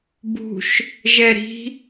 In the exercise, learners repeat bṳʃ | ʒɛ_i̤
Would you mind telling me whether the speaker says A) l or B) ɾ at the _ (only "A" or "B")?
B